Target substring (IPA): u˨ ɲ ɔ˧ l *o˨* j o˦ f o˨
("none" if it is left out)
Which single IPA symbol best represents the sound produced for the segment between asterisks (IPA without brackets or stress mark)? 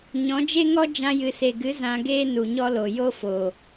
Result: o˨